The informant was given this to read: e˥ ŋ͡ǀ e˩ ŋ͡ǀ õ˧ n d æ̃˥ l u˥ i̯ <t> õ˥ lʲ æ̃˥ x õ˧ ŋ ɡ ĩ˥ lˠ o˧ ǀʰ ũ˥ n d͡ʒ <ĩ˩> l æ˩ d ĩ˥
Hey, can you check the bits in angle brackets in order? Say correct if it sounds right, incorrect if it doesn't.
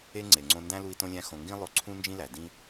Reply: correct, incorrect: ĩ˥

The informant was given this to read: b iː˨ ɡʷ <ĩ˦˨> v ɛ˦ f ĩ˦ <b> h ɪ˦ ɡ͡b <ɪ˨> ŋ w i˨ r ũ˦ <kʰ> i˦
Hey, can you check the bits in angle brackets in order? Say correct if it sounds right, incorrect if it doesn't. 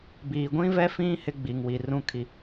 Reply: incorrect: ĩ˦, incorrect: none, incorrect: i˨, correct

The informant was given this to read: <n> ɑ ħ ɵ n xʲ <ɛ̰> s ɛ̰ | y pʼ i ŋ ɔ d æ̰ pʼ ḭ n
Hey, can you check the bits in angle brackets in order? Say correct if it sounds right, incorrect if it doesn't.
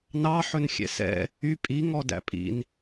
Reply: correct, correct

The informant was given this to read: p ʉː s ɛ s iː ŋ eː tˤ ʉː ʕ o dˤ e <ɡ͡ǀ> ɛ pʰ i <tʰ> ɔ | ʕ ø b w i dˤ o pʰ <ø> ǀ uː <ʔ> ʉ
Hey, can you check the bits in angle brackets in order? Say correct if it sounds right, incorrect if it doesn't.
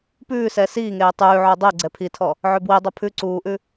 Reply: correct, correct, incorrect: ʉ, correct

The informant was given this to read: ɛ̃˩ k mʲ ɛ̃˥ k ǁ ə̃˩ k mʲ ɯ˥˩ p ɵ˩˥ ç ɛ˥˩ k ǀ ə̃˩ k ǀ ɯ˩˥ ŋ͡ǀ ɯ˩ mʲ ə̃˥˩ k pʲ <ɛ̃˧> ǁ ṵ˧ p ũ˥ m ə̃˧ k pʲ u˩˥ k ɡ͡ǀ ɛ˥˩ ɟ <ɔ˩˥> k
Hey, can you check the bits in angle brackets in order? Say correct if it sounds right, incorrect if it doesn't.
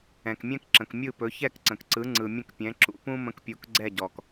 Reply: incorrect: ɛ̃˩˥, incorrect: ɔ˩

